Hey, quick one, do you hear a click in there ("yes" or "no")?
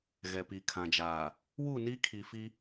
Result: no